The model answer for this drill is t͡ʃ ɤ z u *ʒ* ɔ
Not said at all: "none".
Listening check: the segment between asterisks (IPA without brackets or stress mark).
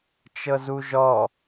ʒ